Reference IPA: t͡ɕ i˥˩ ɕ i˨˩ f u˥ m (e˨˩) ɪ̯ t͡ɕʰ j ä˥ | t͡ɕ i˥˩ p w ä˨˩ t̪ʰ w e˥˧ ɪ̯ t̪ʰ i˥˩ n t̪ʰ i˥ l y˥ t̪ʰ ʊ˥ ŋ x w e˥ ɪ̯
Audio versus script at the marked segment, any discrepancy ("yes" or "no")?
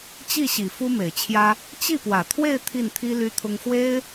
no